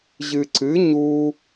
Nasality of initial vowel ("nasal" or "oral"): oral